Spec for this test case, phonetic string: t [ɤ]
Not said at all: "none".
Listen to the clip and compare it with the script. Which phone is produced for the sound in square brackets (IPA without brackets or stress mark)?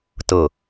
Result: ɤ